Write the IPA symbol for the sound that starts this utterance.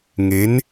ŋ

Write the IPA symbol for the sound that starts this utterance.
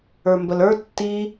ə˞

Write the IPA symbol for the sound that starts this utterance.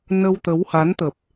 n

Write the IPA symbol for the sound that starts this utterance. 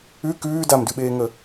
ʉ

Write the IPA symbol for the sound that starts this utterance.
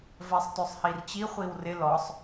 v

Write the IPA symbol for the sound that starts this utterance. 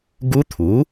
ɡ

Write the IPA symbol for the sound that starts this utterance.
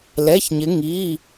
l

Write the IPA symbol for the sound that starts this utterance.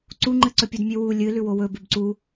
ǀ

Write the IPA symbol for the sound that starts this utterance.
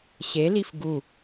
ɕ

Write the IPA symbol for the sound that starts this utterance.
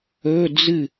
ɵ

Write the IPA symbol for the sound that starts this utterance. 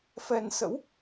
f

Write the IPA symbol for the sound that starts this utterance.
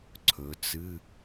ǀʰ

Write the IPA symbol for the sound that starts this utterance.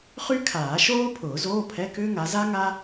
χ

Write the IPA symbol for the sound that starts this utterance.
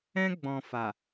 ɛ̃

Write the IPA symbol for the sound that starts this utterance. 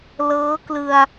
l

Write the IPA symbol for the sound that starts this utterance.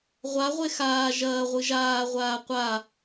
ʁʷ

